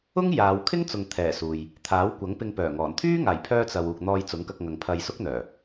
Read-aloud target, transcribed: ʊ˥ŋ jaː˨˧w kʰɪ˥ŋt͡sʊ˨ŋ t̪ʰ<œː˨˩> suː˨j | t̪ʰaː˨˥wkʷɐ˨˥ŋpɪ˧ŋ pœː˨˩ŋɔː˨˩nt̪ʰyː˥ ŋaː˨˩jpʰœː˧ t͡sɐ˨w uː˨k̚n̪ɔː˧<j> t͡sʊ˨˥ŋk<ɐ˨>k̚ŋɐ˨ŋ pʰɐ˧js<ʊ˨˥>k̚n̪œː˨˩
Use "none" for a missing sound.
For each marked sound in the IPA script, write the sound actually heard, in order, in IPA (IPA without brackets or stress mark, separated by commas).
ɛː˨˩, j, ɐ˧, ʊ˥